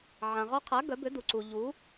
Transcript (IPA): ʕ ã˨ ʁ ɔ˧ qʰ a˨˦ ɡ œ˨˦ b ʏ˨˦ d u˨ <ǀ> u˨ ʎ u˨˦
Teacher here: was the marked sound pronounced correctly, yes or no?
yes